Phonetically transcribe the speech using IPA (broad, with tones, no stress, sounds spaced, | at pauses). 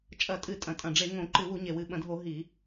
t͡ʃʼ ɐ˧˩˧ tʼ ɨ˧˩˧ tʼ ɐ̃˨˩ tʼ ɐ̃˨˩ ɖ͡ʐ e˧˩˧ ŋ õ˧˩˧ ǃ ɨ˧˩˧ w u˧˩˧ ɲ e˨˩ w ɨ˨˩ ɓ ɐ̃˧˩˧ dʱ o˧˩˧ ɦ i˧˩˧